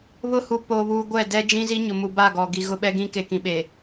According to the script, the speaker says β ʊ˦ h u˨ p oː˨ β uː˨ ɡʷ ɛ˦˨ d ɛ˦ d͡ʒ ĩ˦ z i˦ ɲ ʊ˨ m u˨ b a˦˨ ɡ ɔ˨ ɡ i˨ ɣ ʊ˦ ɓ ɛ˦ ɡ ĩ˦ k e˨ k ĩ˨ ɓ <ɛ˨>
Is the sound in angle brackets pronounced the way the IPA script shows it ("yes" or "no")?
no